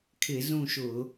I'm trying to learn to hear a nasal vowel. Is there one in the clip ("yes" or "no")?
yes